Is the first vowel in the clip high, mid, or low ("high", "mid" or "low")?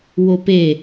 mid